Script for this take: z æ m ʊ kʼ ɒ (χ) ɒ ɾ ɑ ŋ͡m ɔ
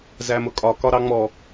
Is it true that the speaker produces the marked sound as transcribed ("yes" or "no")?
no